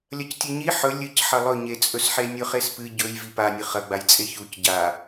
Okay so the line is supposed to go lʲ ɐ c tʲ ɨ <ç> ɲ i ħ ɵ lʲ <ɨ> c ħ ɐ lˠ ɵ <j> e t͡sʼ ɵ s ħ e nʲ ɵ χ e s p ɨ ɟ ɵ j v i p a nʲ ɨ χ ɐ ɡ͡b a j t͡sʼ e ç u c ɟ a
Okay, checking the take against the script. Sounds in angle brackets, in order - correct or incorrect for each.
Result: incorrect, correct, incorrect

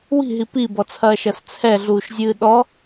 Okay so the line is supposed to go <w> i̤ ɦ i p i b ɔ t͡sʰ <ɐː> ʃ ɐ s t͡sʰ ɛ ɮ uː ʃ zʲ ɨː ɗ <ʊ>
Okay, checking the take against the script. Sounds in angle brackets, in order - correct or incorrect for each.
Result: correct, correct, incorrect

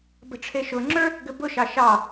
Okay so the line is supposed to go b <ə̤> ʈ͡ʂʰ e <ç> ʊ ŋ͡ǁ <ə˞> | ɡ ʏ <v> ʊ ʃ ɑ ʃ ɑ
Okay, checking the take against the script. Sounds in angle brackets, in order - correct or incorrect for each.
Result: correct, incorrect, correct, incorrect

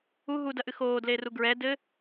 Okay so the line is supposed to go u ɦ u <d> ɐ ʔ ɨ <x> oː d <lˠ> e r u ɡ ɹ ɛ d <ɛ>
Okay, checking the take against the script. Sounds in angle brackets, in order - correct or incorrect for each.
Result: correct, correct, incorrect, incorrect

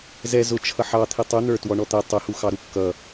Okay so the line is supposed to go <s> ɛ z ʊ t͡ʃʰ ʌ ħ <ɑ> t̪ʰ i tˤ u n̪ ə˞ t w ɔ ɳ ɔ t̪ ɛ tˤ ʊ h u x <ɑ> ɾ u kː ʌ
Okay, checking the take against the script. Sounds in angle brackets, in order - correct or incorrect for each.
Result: incorrect, correct, correct

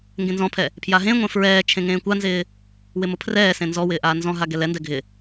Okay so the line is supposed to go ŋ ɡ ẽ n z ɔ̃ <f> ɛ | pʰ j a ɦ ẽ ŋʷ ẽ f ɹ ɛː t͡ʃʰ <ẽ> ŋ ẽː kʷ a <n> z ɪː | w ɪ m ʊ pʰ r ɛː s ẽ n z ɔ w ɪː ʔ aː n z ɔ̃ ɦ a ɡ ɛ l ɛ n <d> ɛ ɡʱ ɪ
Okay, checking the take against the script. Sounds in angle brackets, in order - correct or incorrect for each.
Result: incorrect, correct, correct, correct

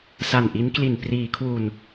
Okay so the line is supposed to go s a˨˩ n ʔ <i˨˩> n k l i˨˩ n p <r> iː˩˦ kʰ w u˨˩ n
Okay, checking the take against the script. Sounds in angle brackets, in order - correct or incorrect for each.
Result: incorrect, correct

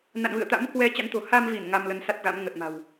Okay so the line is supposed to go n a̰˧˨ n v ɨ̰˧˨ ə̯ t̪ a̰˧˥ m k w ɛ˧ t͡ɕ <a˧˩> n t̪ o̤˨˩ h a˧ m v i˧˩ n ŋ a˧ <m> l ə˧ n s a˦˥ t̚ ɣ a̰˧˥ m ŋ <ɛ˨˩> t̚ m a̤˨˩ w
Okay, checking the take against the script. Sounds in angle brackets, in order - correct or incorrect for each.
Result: incorrect, correct, incorrect

